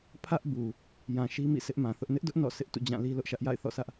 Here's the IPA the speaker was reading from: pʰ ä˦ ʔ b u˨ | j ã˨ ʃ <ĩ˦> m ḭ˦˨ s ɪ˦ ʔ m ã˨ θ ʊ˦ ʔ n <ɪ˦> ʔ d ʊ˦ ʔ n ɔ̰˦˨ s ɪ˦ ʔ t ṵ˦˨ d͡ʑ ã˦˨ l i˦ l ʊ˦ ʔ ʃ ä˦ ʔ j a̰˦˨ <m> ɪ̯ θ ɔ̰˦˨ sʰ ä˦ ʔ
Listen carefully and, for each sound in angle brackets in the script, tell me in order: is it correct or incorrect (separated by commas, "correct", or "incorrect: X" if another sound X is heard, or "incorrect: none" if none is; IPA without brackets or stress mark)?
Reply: incorrect: i˦, correct, incorrect: none